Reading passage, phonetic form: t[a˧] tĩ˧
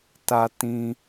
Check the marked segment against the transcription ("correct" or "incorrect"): correct